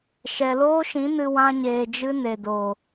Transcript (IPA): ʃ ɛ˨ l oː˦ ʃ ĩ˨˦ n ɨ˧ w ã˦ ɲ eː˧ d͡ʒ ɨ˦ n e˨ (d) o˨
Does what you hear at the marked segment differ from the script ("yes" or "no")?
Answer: no